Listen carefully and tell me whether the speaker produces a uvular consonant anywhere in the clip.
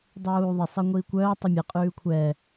yes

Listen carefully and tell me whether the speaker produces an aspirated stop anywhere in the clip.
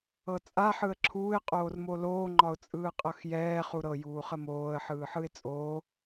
yes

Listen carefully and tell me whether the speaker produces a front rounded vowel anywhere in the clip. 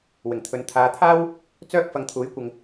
yes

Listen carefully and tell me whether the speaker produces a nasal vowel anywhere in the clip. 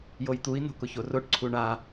no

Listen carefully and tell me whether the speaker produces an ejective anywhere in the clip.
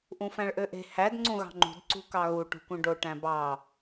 no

